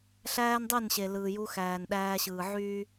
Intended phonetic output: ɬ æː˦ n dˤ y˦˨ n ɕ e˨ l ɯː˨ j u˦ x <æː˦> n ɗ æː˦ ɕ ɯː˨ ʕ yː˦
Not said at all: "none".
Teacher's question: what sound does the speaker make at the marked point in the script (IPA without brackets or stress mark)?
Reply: æː˨